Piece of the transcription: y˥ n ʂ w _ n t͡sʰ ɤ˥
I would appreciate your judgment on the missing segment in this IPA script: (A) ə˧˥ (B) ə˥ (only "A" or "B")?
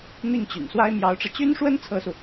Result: B